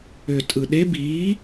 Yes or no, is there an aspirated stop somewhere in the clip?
no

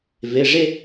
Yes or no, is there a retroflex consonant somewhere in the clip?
yes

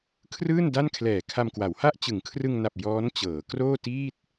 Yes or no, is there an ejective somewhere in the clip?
no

